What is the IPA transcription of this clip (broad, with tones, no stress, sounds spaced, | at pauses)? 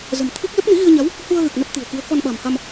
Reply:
z ə̤˨˩ m t̪ʰ i˦˥ k̚ z ə˦˥ p̚ n i˨˦ ɣ i˧ ə̯ ɲ a˨˦ w | h u˧ ə̯ ɣ ɨ˨˩ k̚ n ə˦˥ p̚ t̪ i̤˨˩ ə̯ k i˨˦ ə̯ k ɔ˧ n ɓ a̤˨˩ m h a˧ m